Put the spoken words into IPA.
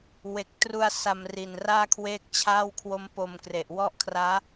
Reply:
w e˨˩ k̚ t r u˧ a̯ s a˧ m r i˨˩ n r aː˥˩ kʰ w eː˥˩ k̚ t͡ɕʰ aː˥˩ w kʰ w o˦˥ m p o˧ m k r e˨˩ ʔ w ɔ˦˥ ʔ kʰ r aː˦˥

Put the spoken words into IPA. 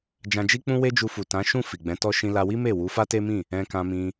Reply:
d͡ʒ ã˧ d͡ʒ i˦ k͡p ũ˦ w e˦ d͡ʒ u˧ f u˨ t ã˨˦ ʃ ũ˦˨ f i˨ ɡ͡b ɛ̃˨˦ t ɔ˦ ʃ ĩ˧ l a˧ w i˦ m e˦˨ w u˨˦ f a˦ t e˦ m ĩ˦˨ | ɛ̃˧ k ã˧ m ĩ˧

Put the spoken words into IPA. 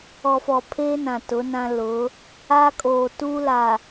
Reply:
ɔ˨ f ɔ˨ pʰ eː˦ n ã˨ t ʊ˨˦ n ã˦ l ʊ˨˦ | aː˦ kʼ oː˨ t uː˦ l a˨

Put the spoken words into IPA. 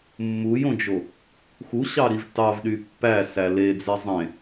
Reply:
mː u j õ d͡ʒ o | x u ɕ ɑ ɾ i v t ɑ v ɗ y pː æ s æ l e d͡z e zˤ ẽ

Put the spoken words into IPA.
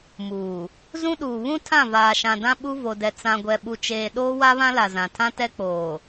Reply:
m uː˨ | z ũ˦ ɗ uː˨ β ũ˦ tʰ ã˦˨ v aː˨ ʃ ã˨ d ã˦ ɓ u˦ v o˨ d ɛ˨ t͡s ã˨ ɡʷ ɛ˨ ɓ u˨ t͡ʃ eː˨ ɗ oː˦ w a˦ β ã˦ l a˨ z ã˨ tʰ ã˦ t ɛ˦ k͡p oː˨

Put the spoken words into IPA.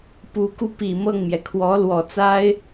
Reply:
p u˧˥ k u˧ p i˨˩ m ɤ˥˩ ŋ m j ɛ˩ kʰ w ɔ˧˥ l w ɔ˨˩ t͡s a˥ ɪ̯

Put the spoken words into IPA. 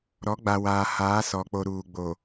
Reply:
ɾ ɔ˨˦ ɡ͡b a˨ w aː˨ h aː˨˦ s ɔ˨ k͡p o˨ ɾ uː˨ ɡ͡b o˨

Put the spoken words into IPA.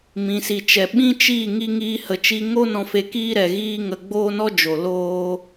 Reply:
m ĩ˨ s i˨ t͡ʃ ɛ˨ ɓ ĩ˦ t͡ʃ iː˦˨ ŋ i˦ ŋ iː˦ h ə˧ t͡ʃ i˧ ŋ o˦ n ɔ̃˧ f e˧ k iː˦ ɾ ɛ˨ ɣ iː˦ ŋ ə˧ ɡ͡b oː˦ n ɔ˦ d͡ʒ o˨ l oː˦

